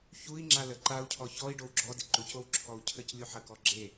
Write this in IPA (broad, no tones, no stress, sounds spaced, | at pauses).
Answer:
ç u i̯ ŋ͡ǁ a l ə ǃ a u̯ cʰ ɔ ç ɔ i̯ ɖ o w ɡ͡ǁ ɔ d ɪ ǃ u c o w ǁʰ ɔ u̯ cʰ ə c lʲ u ħ ə k ɔ ɡ͡ǁ e